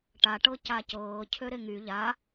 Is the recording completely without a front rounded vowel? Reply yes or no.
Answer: no